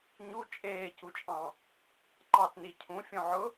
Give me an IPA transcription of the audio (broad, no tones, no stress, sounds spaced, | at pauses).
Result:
ɲ u t͡ʃʼ eː c u t͡ʃʼ ɑ̃ | ǃ ɑ t n i cʰ ũ fʲ õ ʕ ʊ